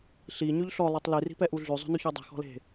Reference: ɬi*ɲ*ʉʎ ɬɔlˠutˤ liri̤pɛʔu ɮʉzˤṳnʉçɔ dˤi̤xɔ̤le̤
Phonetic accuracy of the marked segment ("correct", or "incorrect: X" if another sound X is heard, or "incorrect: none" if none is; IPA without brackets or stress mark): correct